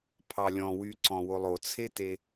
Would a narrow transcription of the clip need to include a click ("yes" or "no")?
yes